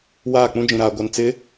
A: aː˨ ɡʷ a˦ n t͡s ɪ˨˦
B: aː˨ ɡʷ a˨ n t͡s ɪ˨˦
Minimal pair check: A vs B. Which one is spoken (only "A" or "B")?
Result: B